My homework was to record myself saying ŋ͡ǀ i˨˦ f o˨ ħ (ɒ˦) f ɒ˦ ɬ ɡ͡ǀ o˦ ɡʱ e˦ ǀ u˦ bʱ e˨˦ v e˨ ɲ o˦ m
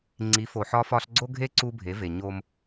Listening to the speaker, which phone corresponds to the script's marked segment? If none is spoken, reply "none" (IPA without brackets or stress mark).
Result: ɒ˦